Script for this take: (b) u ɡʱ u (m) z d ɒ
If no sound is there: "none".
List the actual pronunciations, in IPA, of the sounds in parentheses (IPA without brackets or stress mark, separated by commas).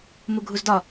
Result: m, none